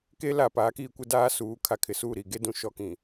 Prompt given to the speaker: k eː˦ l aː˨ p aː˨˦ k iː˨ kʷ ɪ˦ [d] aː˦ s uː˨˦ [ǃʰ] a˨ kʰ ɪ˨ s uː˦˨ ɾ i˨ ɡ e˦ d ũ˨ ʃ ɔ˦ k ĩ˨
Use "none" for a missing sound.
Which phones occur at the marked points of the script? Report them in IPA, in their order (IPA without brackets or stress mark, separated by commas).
d, kʰ